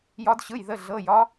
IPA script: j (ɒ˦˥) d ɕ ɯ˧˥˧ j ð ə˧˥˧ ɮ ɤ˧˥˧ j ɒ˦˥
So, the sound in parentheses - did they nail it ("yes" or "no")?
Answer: yes